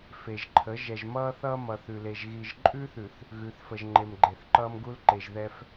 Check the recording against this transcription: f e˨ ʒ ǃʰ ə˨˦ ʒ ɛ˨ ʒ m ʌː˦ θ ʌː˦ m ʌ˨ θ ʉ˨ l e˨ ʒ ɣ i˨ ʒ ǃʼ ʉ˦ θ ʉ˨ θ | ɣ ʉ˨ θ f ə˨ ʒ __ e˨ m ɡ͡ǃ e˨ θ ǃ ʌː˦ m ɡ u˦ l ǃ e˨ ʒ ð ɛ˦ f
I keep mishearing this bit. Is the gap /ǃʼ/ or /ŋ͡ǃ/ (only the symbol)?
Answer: ŋ͡ǃ